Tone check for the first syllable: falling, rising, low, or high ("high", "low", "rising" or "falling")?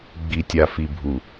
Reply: low